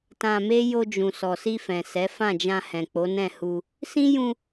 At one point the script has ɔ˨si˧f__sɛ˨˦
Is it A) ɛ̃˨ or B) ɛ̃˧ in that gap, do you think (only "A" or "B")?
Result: A